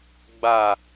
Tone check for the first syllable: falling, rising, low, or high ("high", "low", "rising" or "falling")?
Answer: falling